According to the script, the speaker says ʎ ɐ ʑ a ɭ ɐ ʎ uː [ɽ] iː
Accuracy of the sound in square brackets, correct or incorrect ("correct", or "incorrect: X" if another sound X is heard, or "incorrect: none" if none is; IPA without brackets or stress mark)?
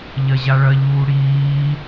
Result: correct